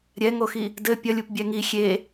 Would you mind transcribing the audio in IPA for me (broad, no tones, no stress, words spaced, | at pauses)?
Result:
ɾʲɛŋoxi | dɘ pʲɐlʲup bʲɛŋi xʲe